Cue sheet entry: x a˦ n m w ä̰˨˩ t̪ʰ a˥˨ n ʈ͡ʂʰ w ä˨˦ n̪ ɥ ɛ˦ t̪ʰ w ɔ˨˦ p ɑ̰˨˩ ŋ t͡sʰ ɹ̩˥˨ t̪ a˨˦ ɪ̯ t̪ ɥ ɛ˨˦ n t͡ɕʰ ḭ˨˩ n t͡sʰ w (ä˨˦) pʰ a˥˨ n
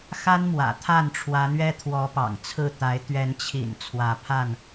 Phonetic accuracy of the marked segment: correct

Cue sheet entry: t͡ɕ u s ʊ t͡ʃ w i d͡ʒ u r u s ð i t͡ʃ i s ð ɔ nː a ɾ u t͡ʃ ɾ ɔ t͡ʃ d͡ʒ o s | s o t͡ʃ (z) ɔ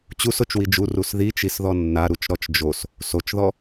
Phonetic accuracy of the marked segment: incorrect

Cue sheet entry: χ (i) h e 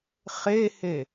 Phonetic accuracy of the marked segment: incorrect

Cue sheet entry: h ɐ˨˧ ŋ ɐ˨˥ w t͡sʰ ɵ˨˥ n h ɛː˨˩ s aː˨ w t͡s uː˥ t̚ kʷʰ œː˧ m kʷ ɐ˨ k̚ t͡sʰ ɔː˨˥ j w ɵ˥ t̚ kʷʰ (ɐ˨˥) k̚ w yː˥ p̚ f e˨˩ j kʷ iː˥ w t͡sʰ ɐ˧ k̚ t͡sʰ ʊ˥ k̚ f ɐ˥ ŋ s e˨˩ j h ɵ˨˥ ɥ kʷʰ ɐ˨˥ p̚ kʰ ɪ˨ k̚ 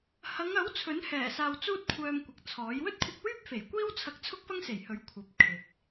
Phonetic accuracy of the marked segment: incorrect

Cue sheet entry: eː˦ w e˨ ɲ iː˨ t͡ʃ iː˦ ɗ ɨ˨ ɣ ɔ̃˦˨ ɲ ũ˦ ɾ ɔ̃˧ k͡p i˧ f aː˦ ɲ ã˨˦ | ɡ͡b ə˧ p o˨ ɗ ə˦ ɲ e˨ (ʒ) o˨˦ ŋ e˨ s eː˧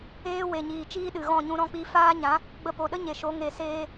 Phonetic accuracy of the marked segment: incorrect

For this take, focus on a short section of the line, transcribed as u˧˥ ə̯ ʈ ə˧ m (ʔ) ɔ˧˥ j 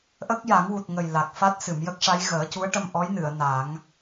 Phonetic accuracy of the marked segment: correct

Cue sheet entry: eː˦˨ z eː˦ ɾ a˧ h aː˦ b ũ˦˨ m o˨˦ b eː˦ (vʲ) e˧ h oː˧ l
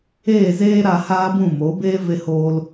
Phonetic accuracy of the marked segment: incorrect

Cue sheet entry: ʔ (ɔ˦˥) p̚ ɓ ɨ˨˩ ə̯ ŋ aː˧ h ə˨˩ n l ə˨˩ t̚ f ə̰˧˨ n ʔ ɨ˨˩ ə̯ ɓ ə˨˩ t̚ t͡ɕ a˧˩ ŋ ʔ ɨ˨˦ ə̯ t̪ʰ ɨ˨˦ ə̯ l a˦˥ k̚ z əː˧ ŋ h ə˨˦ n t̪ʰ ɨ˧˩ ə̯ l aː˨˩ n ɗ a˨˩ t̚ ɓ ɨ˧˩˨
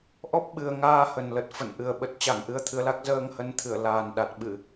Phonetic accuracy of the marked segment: correct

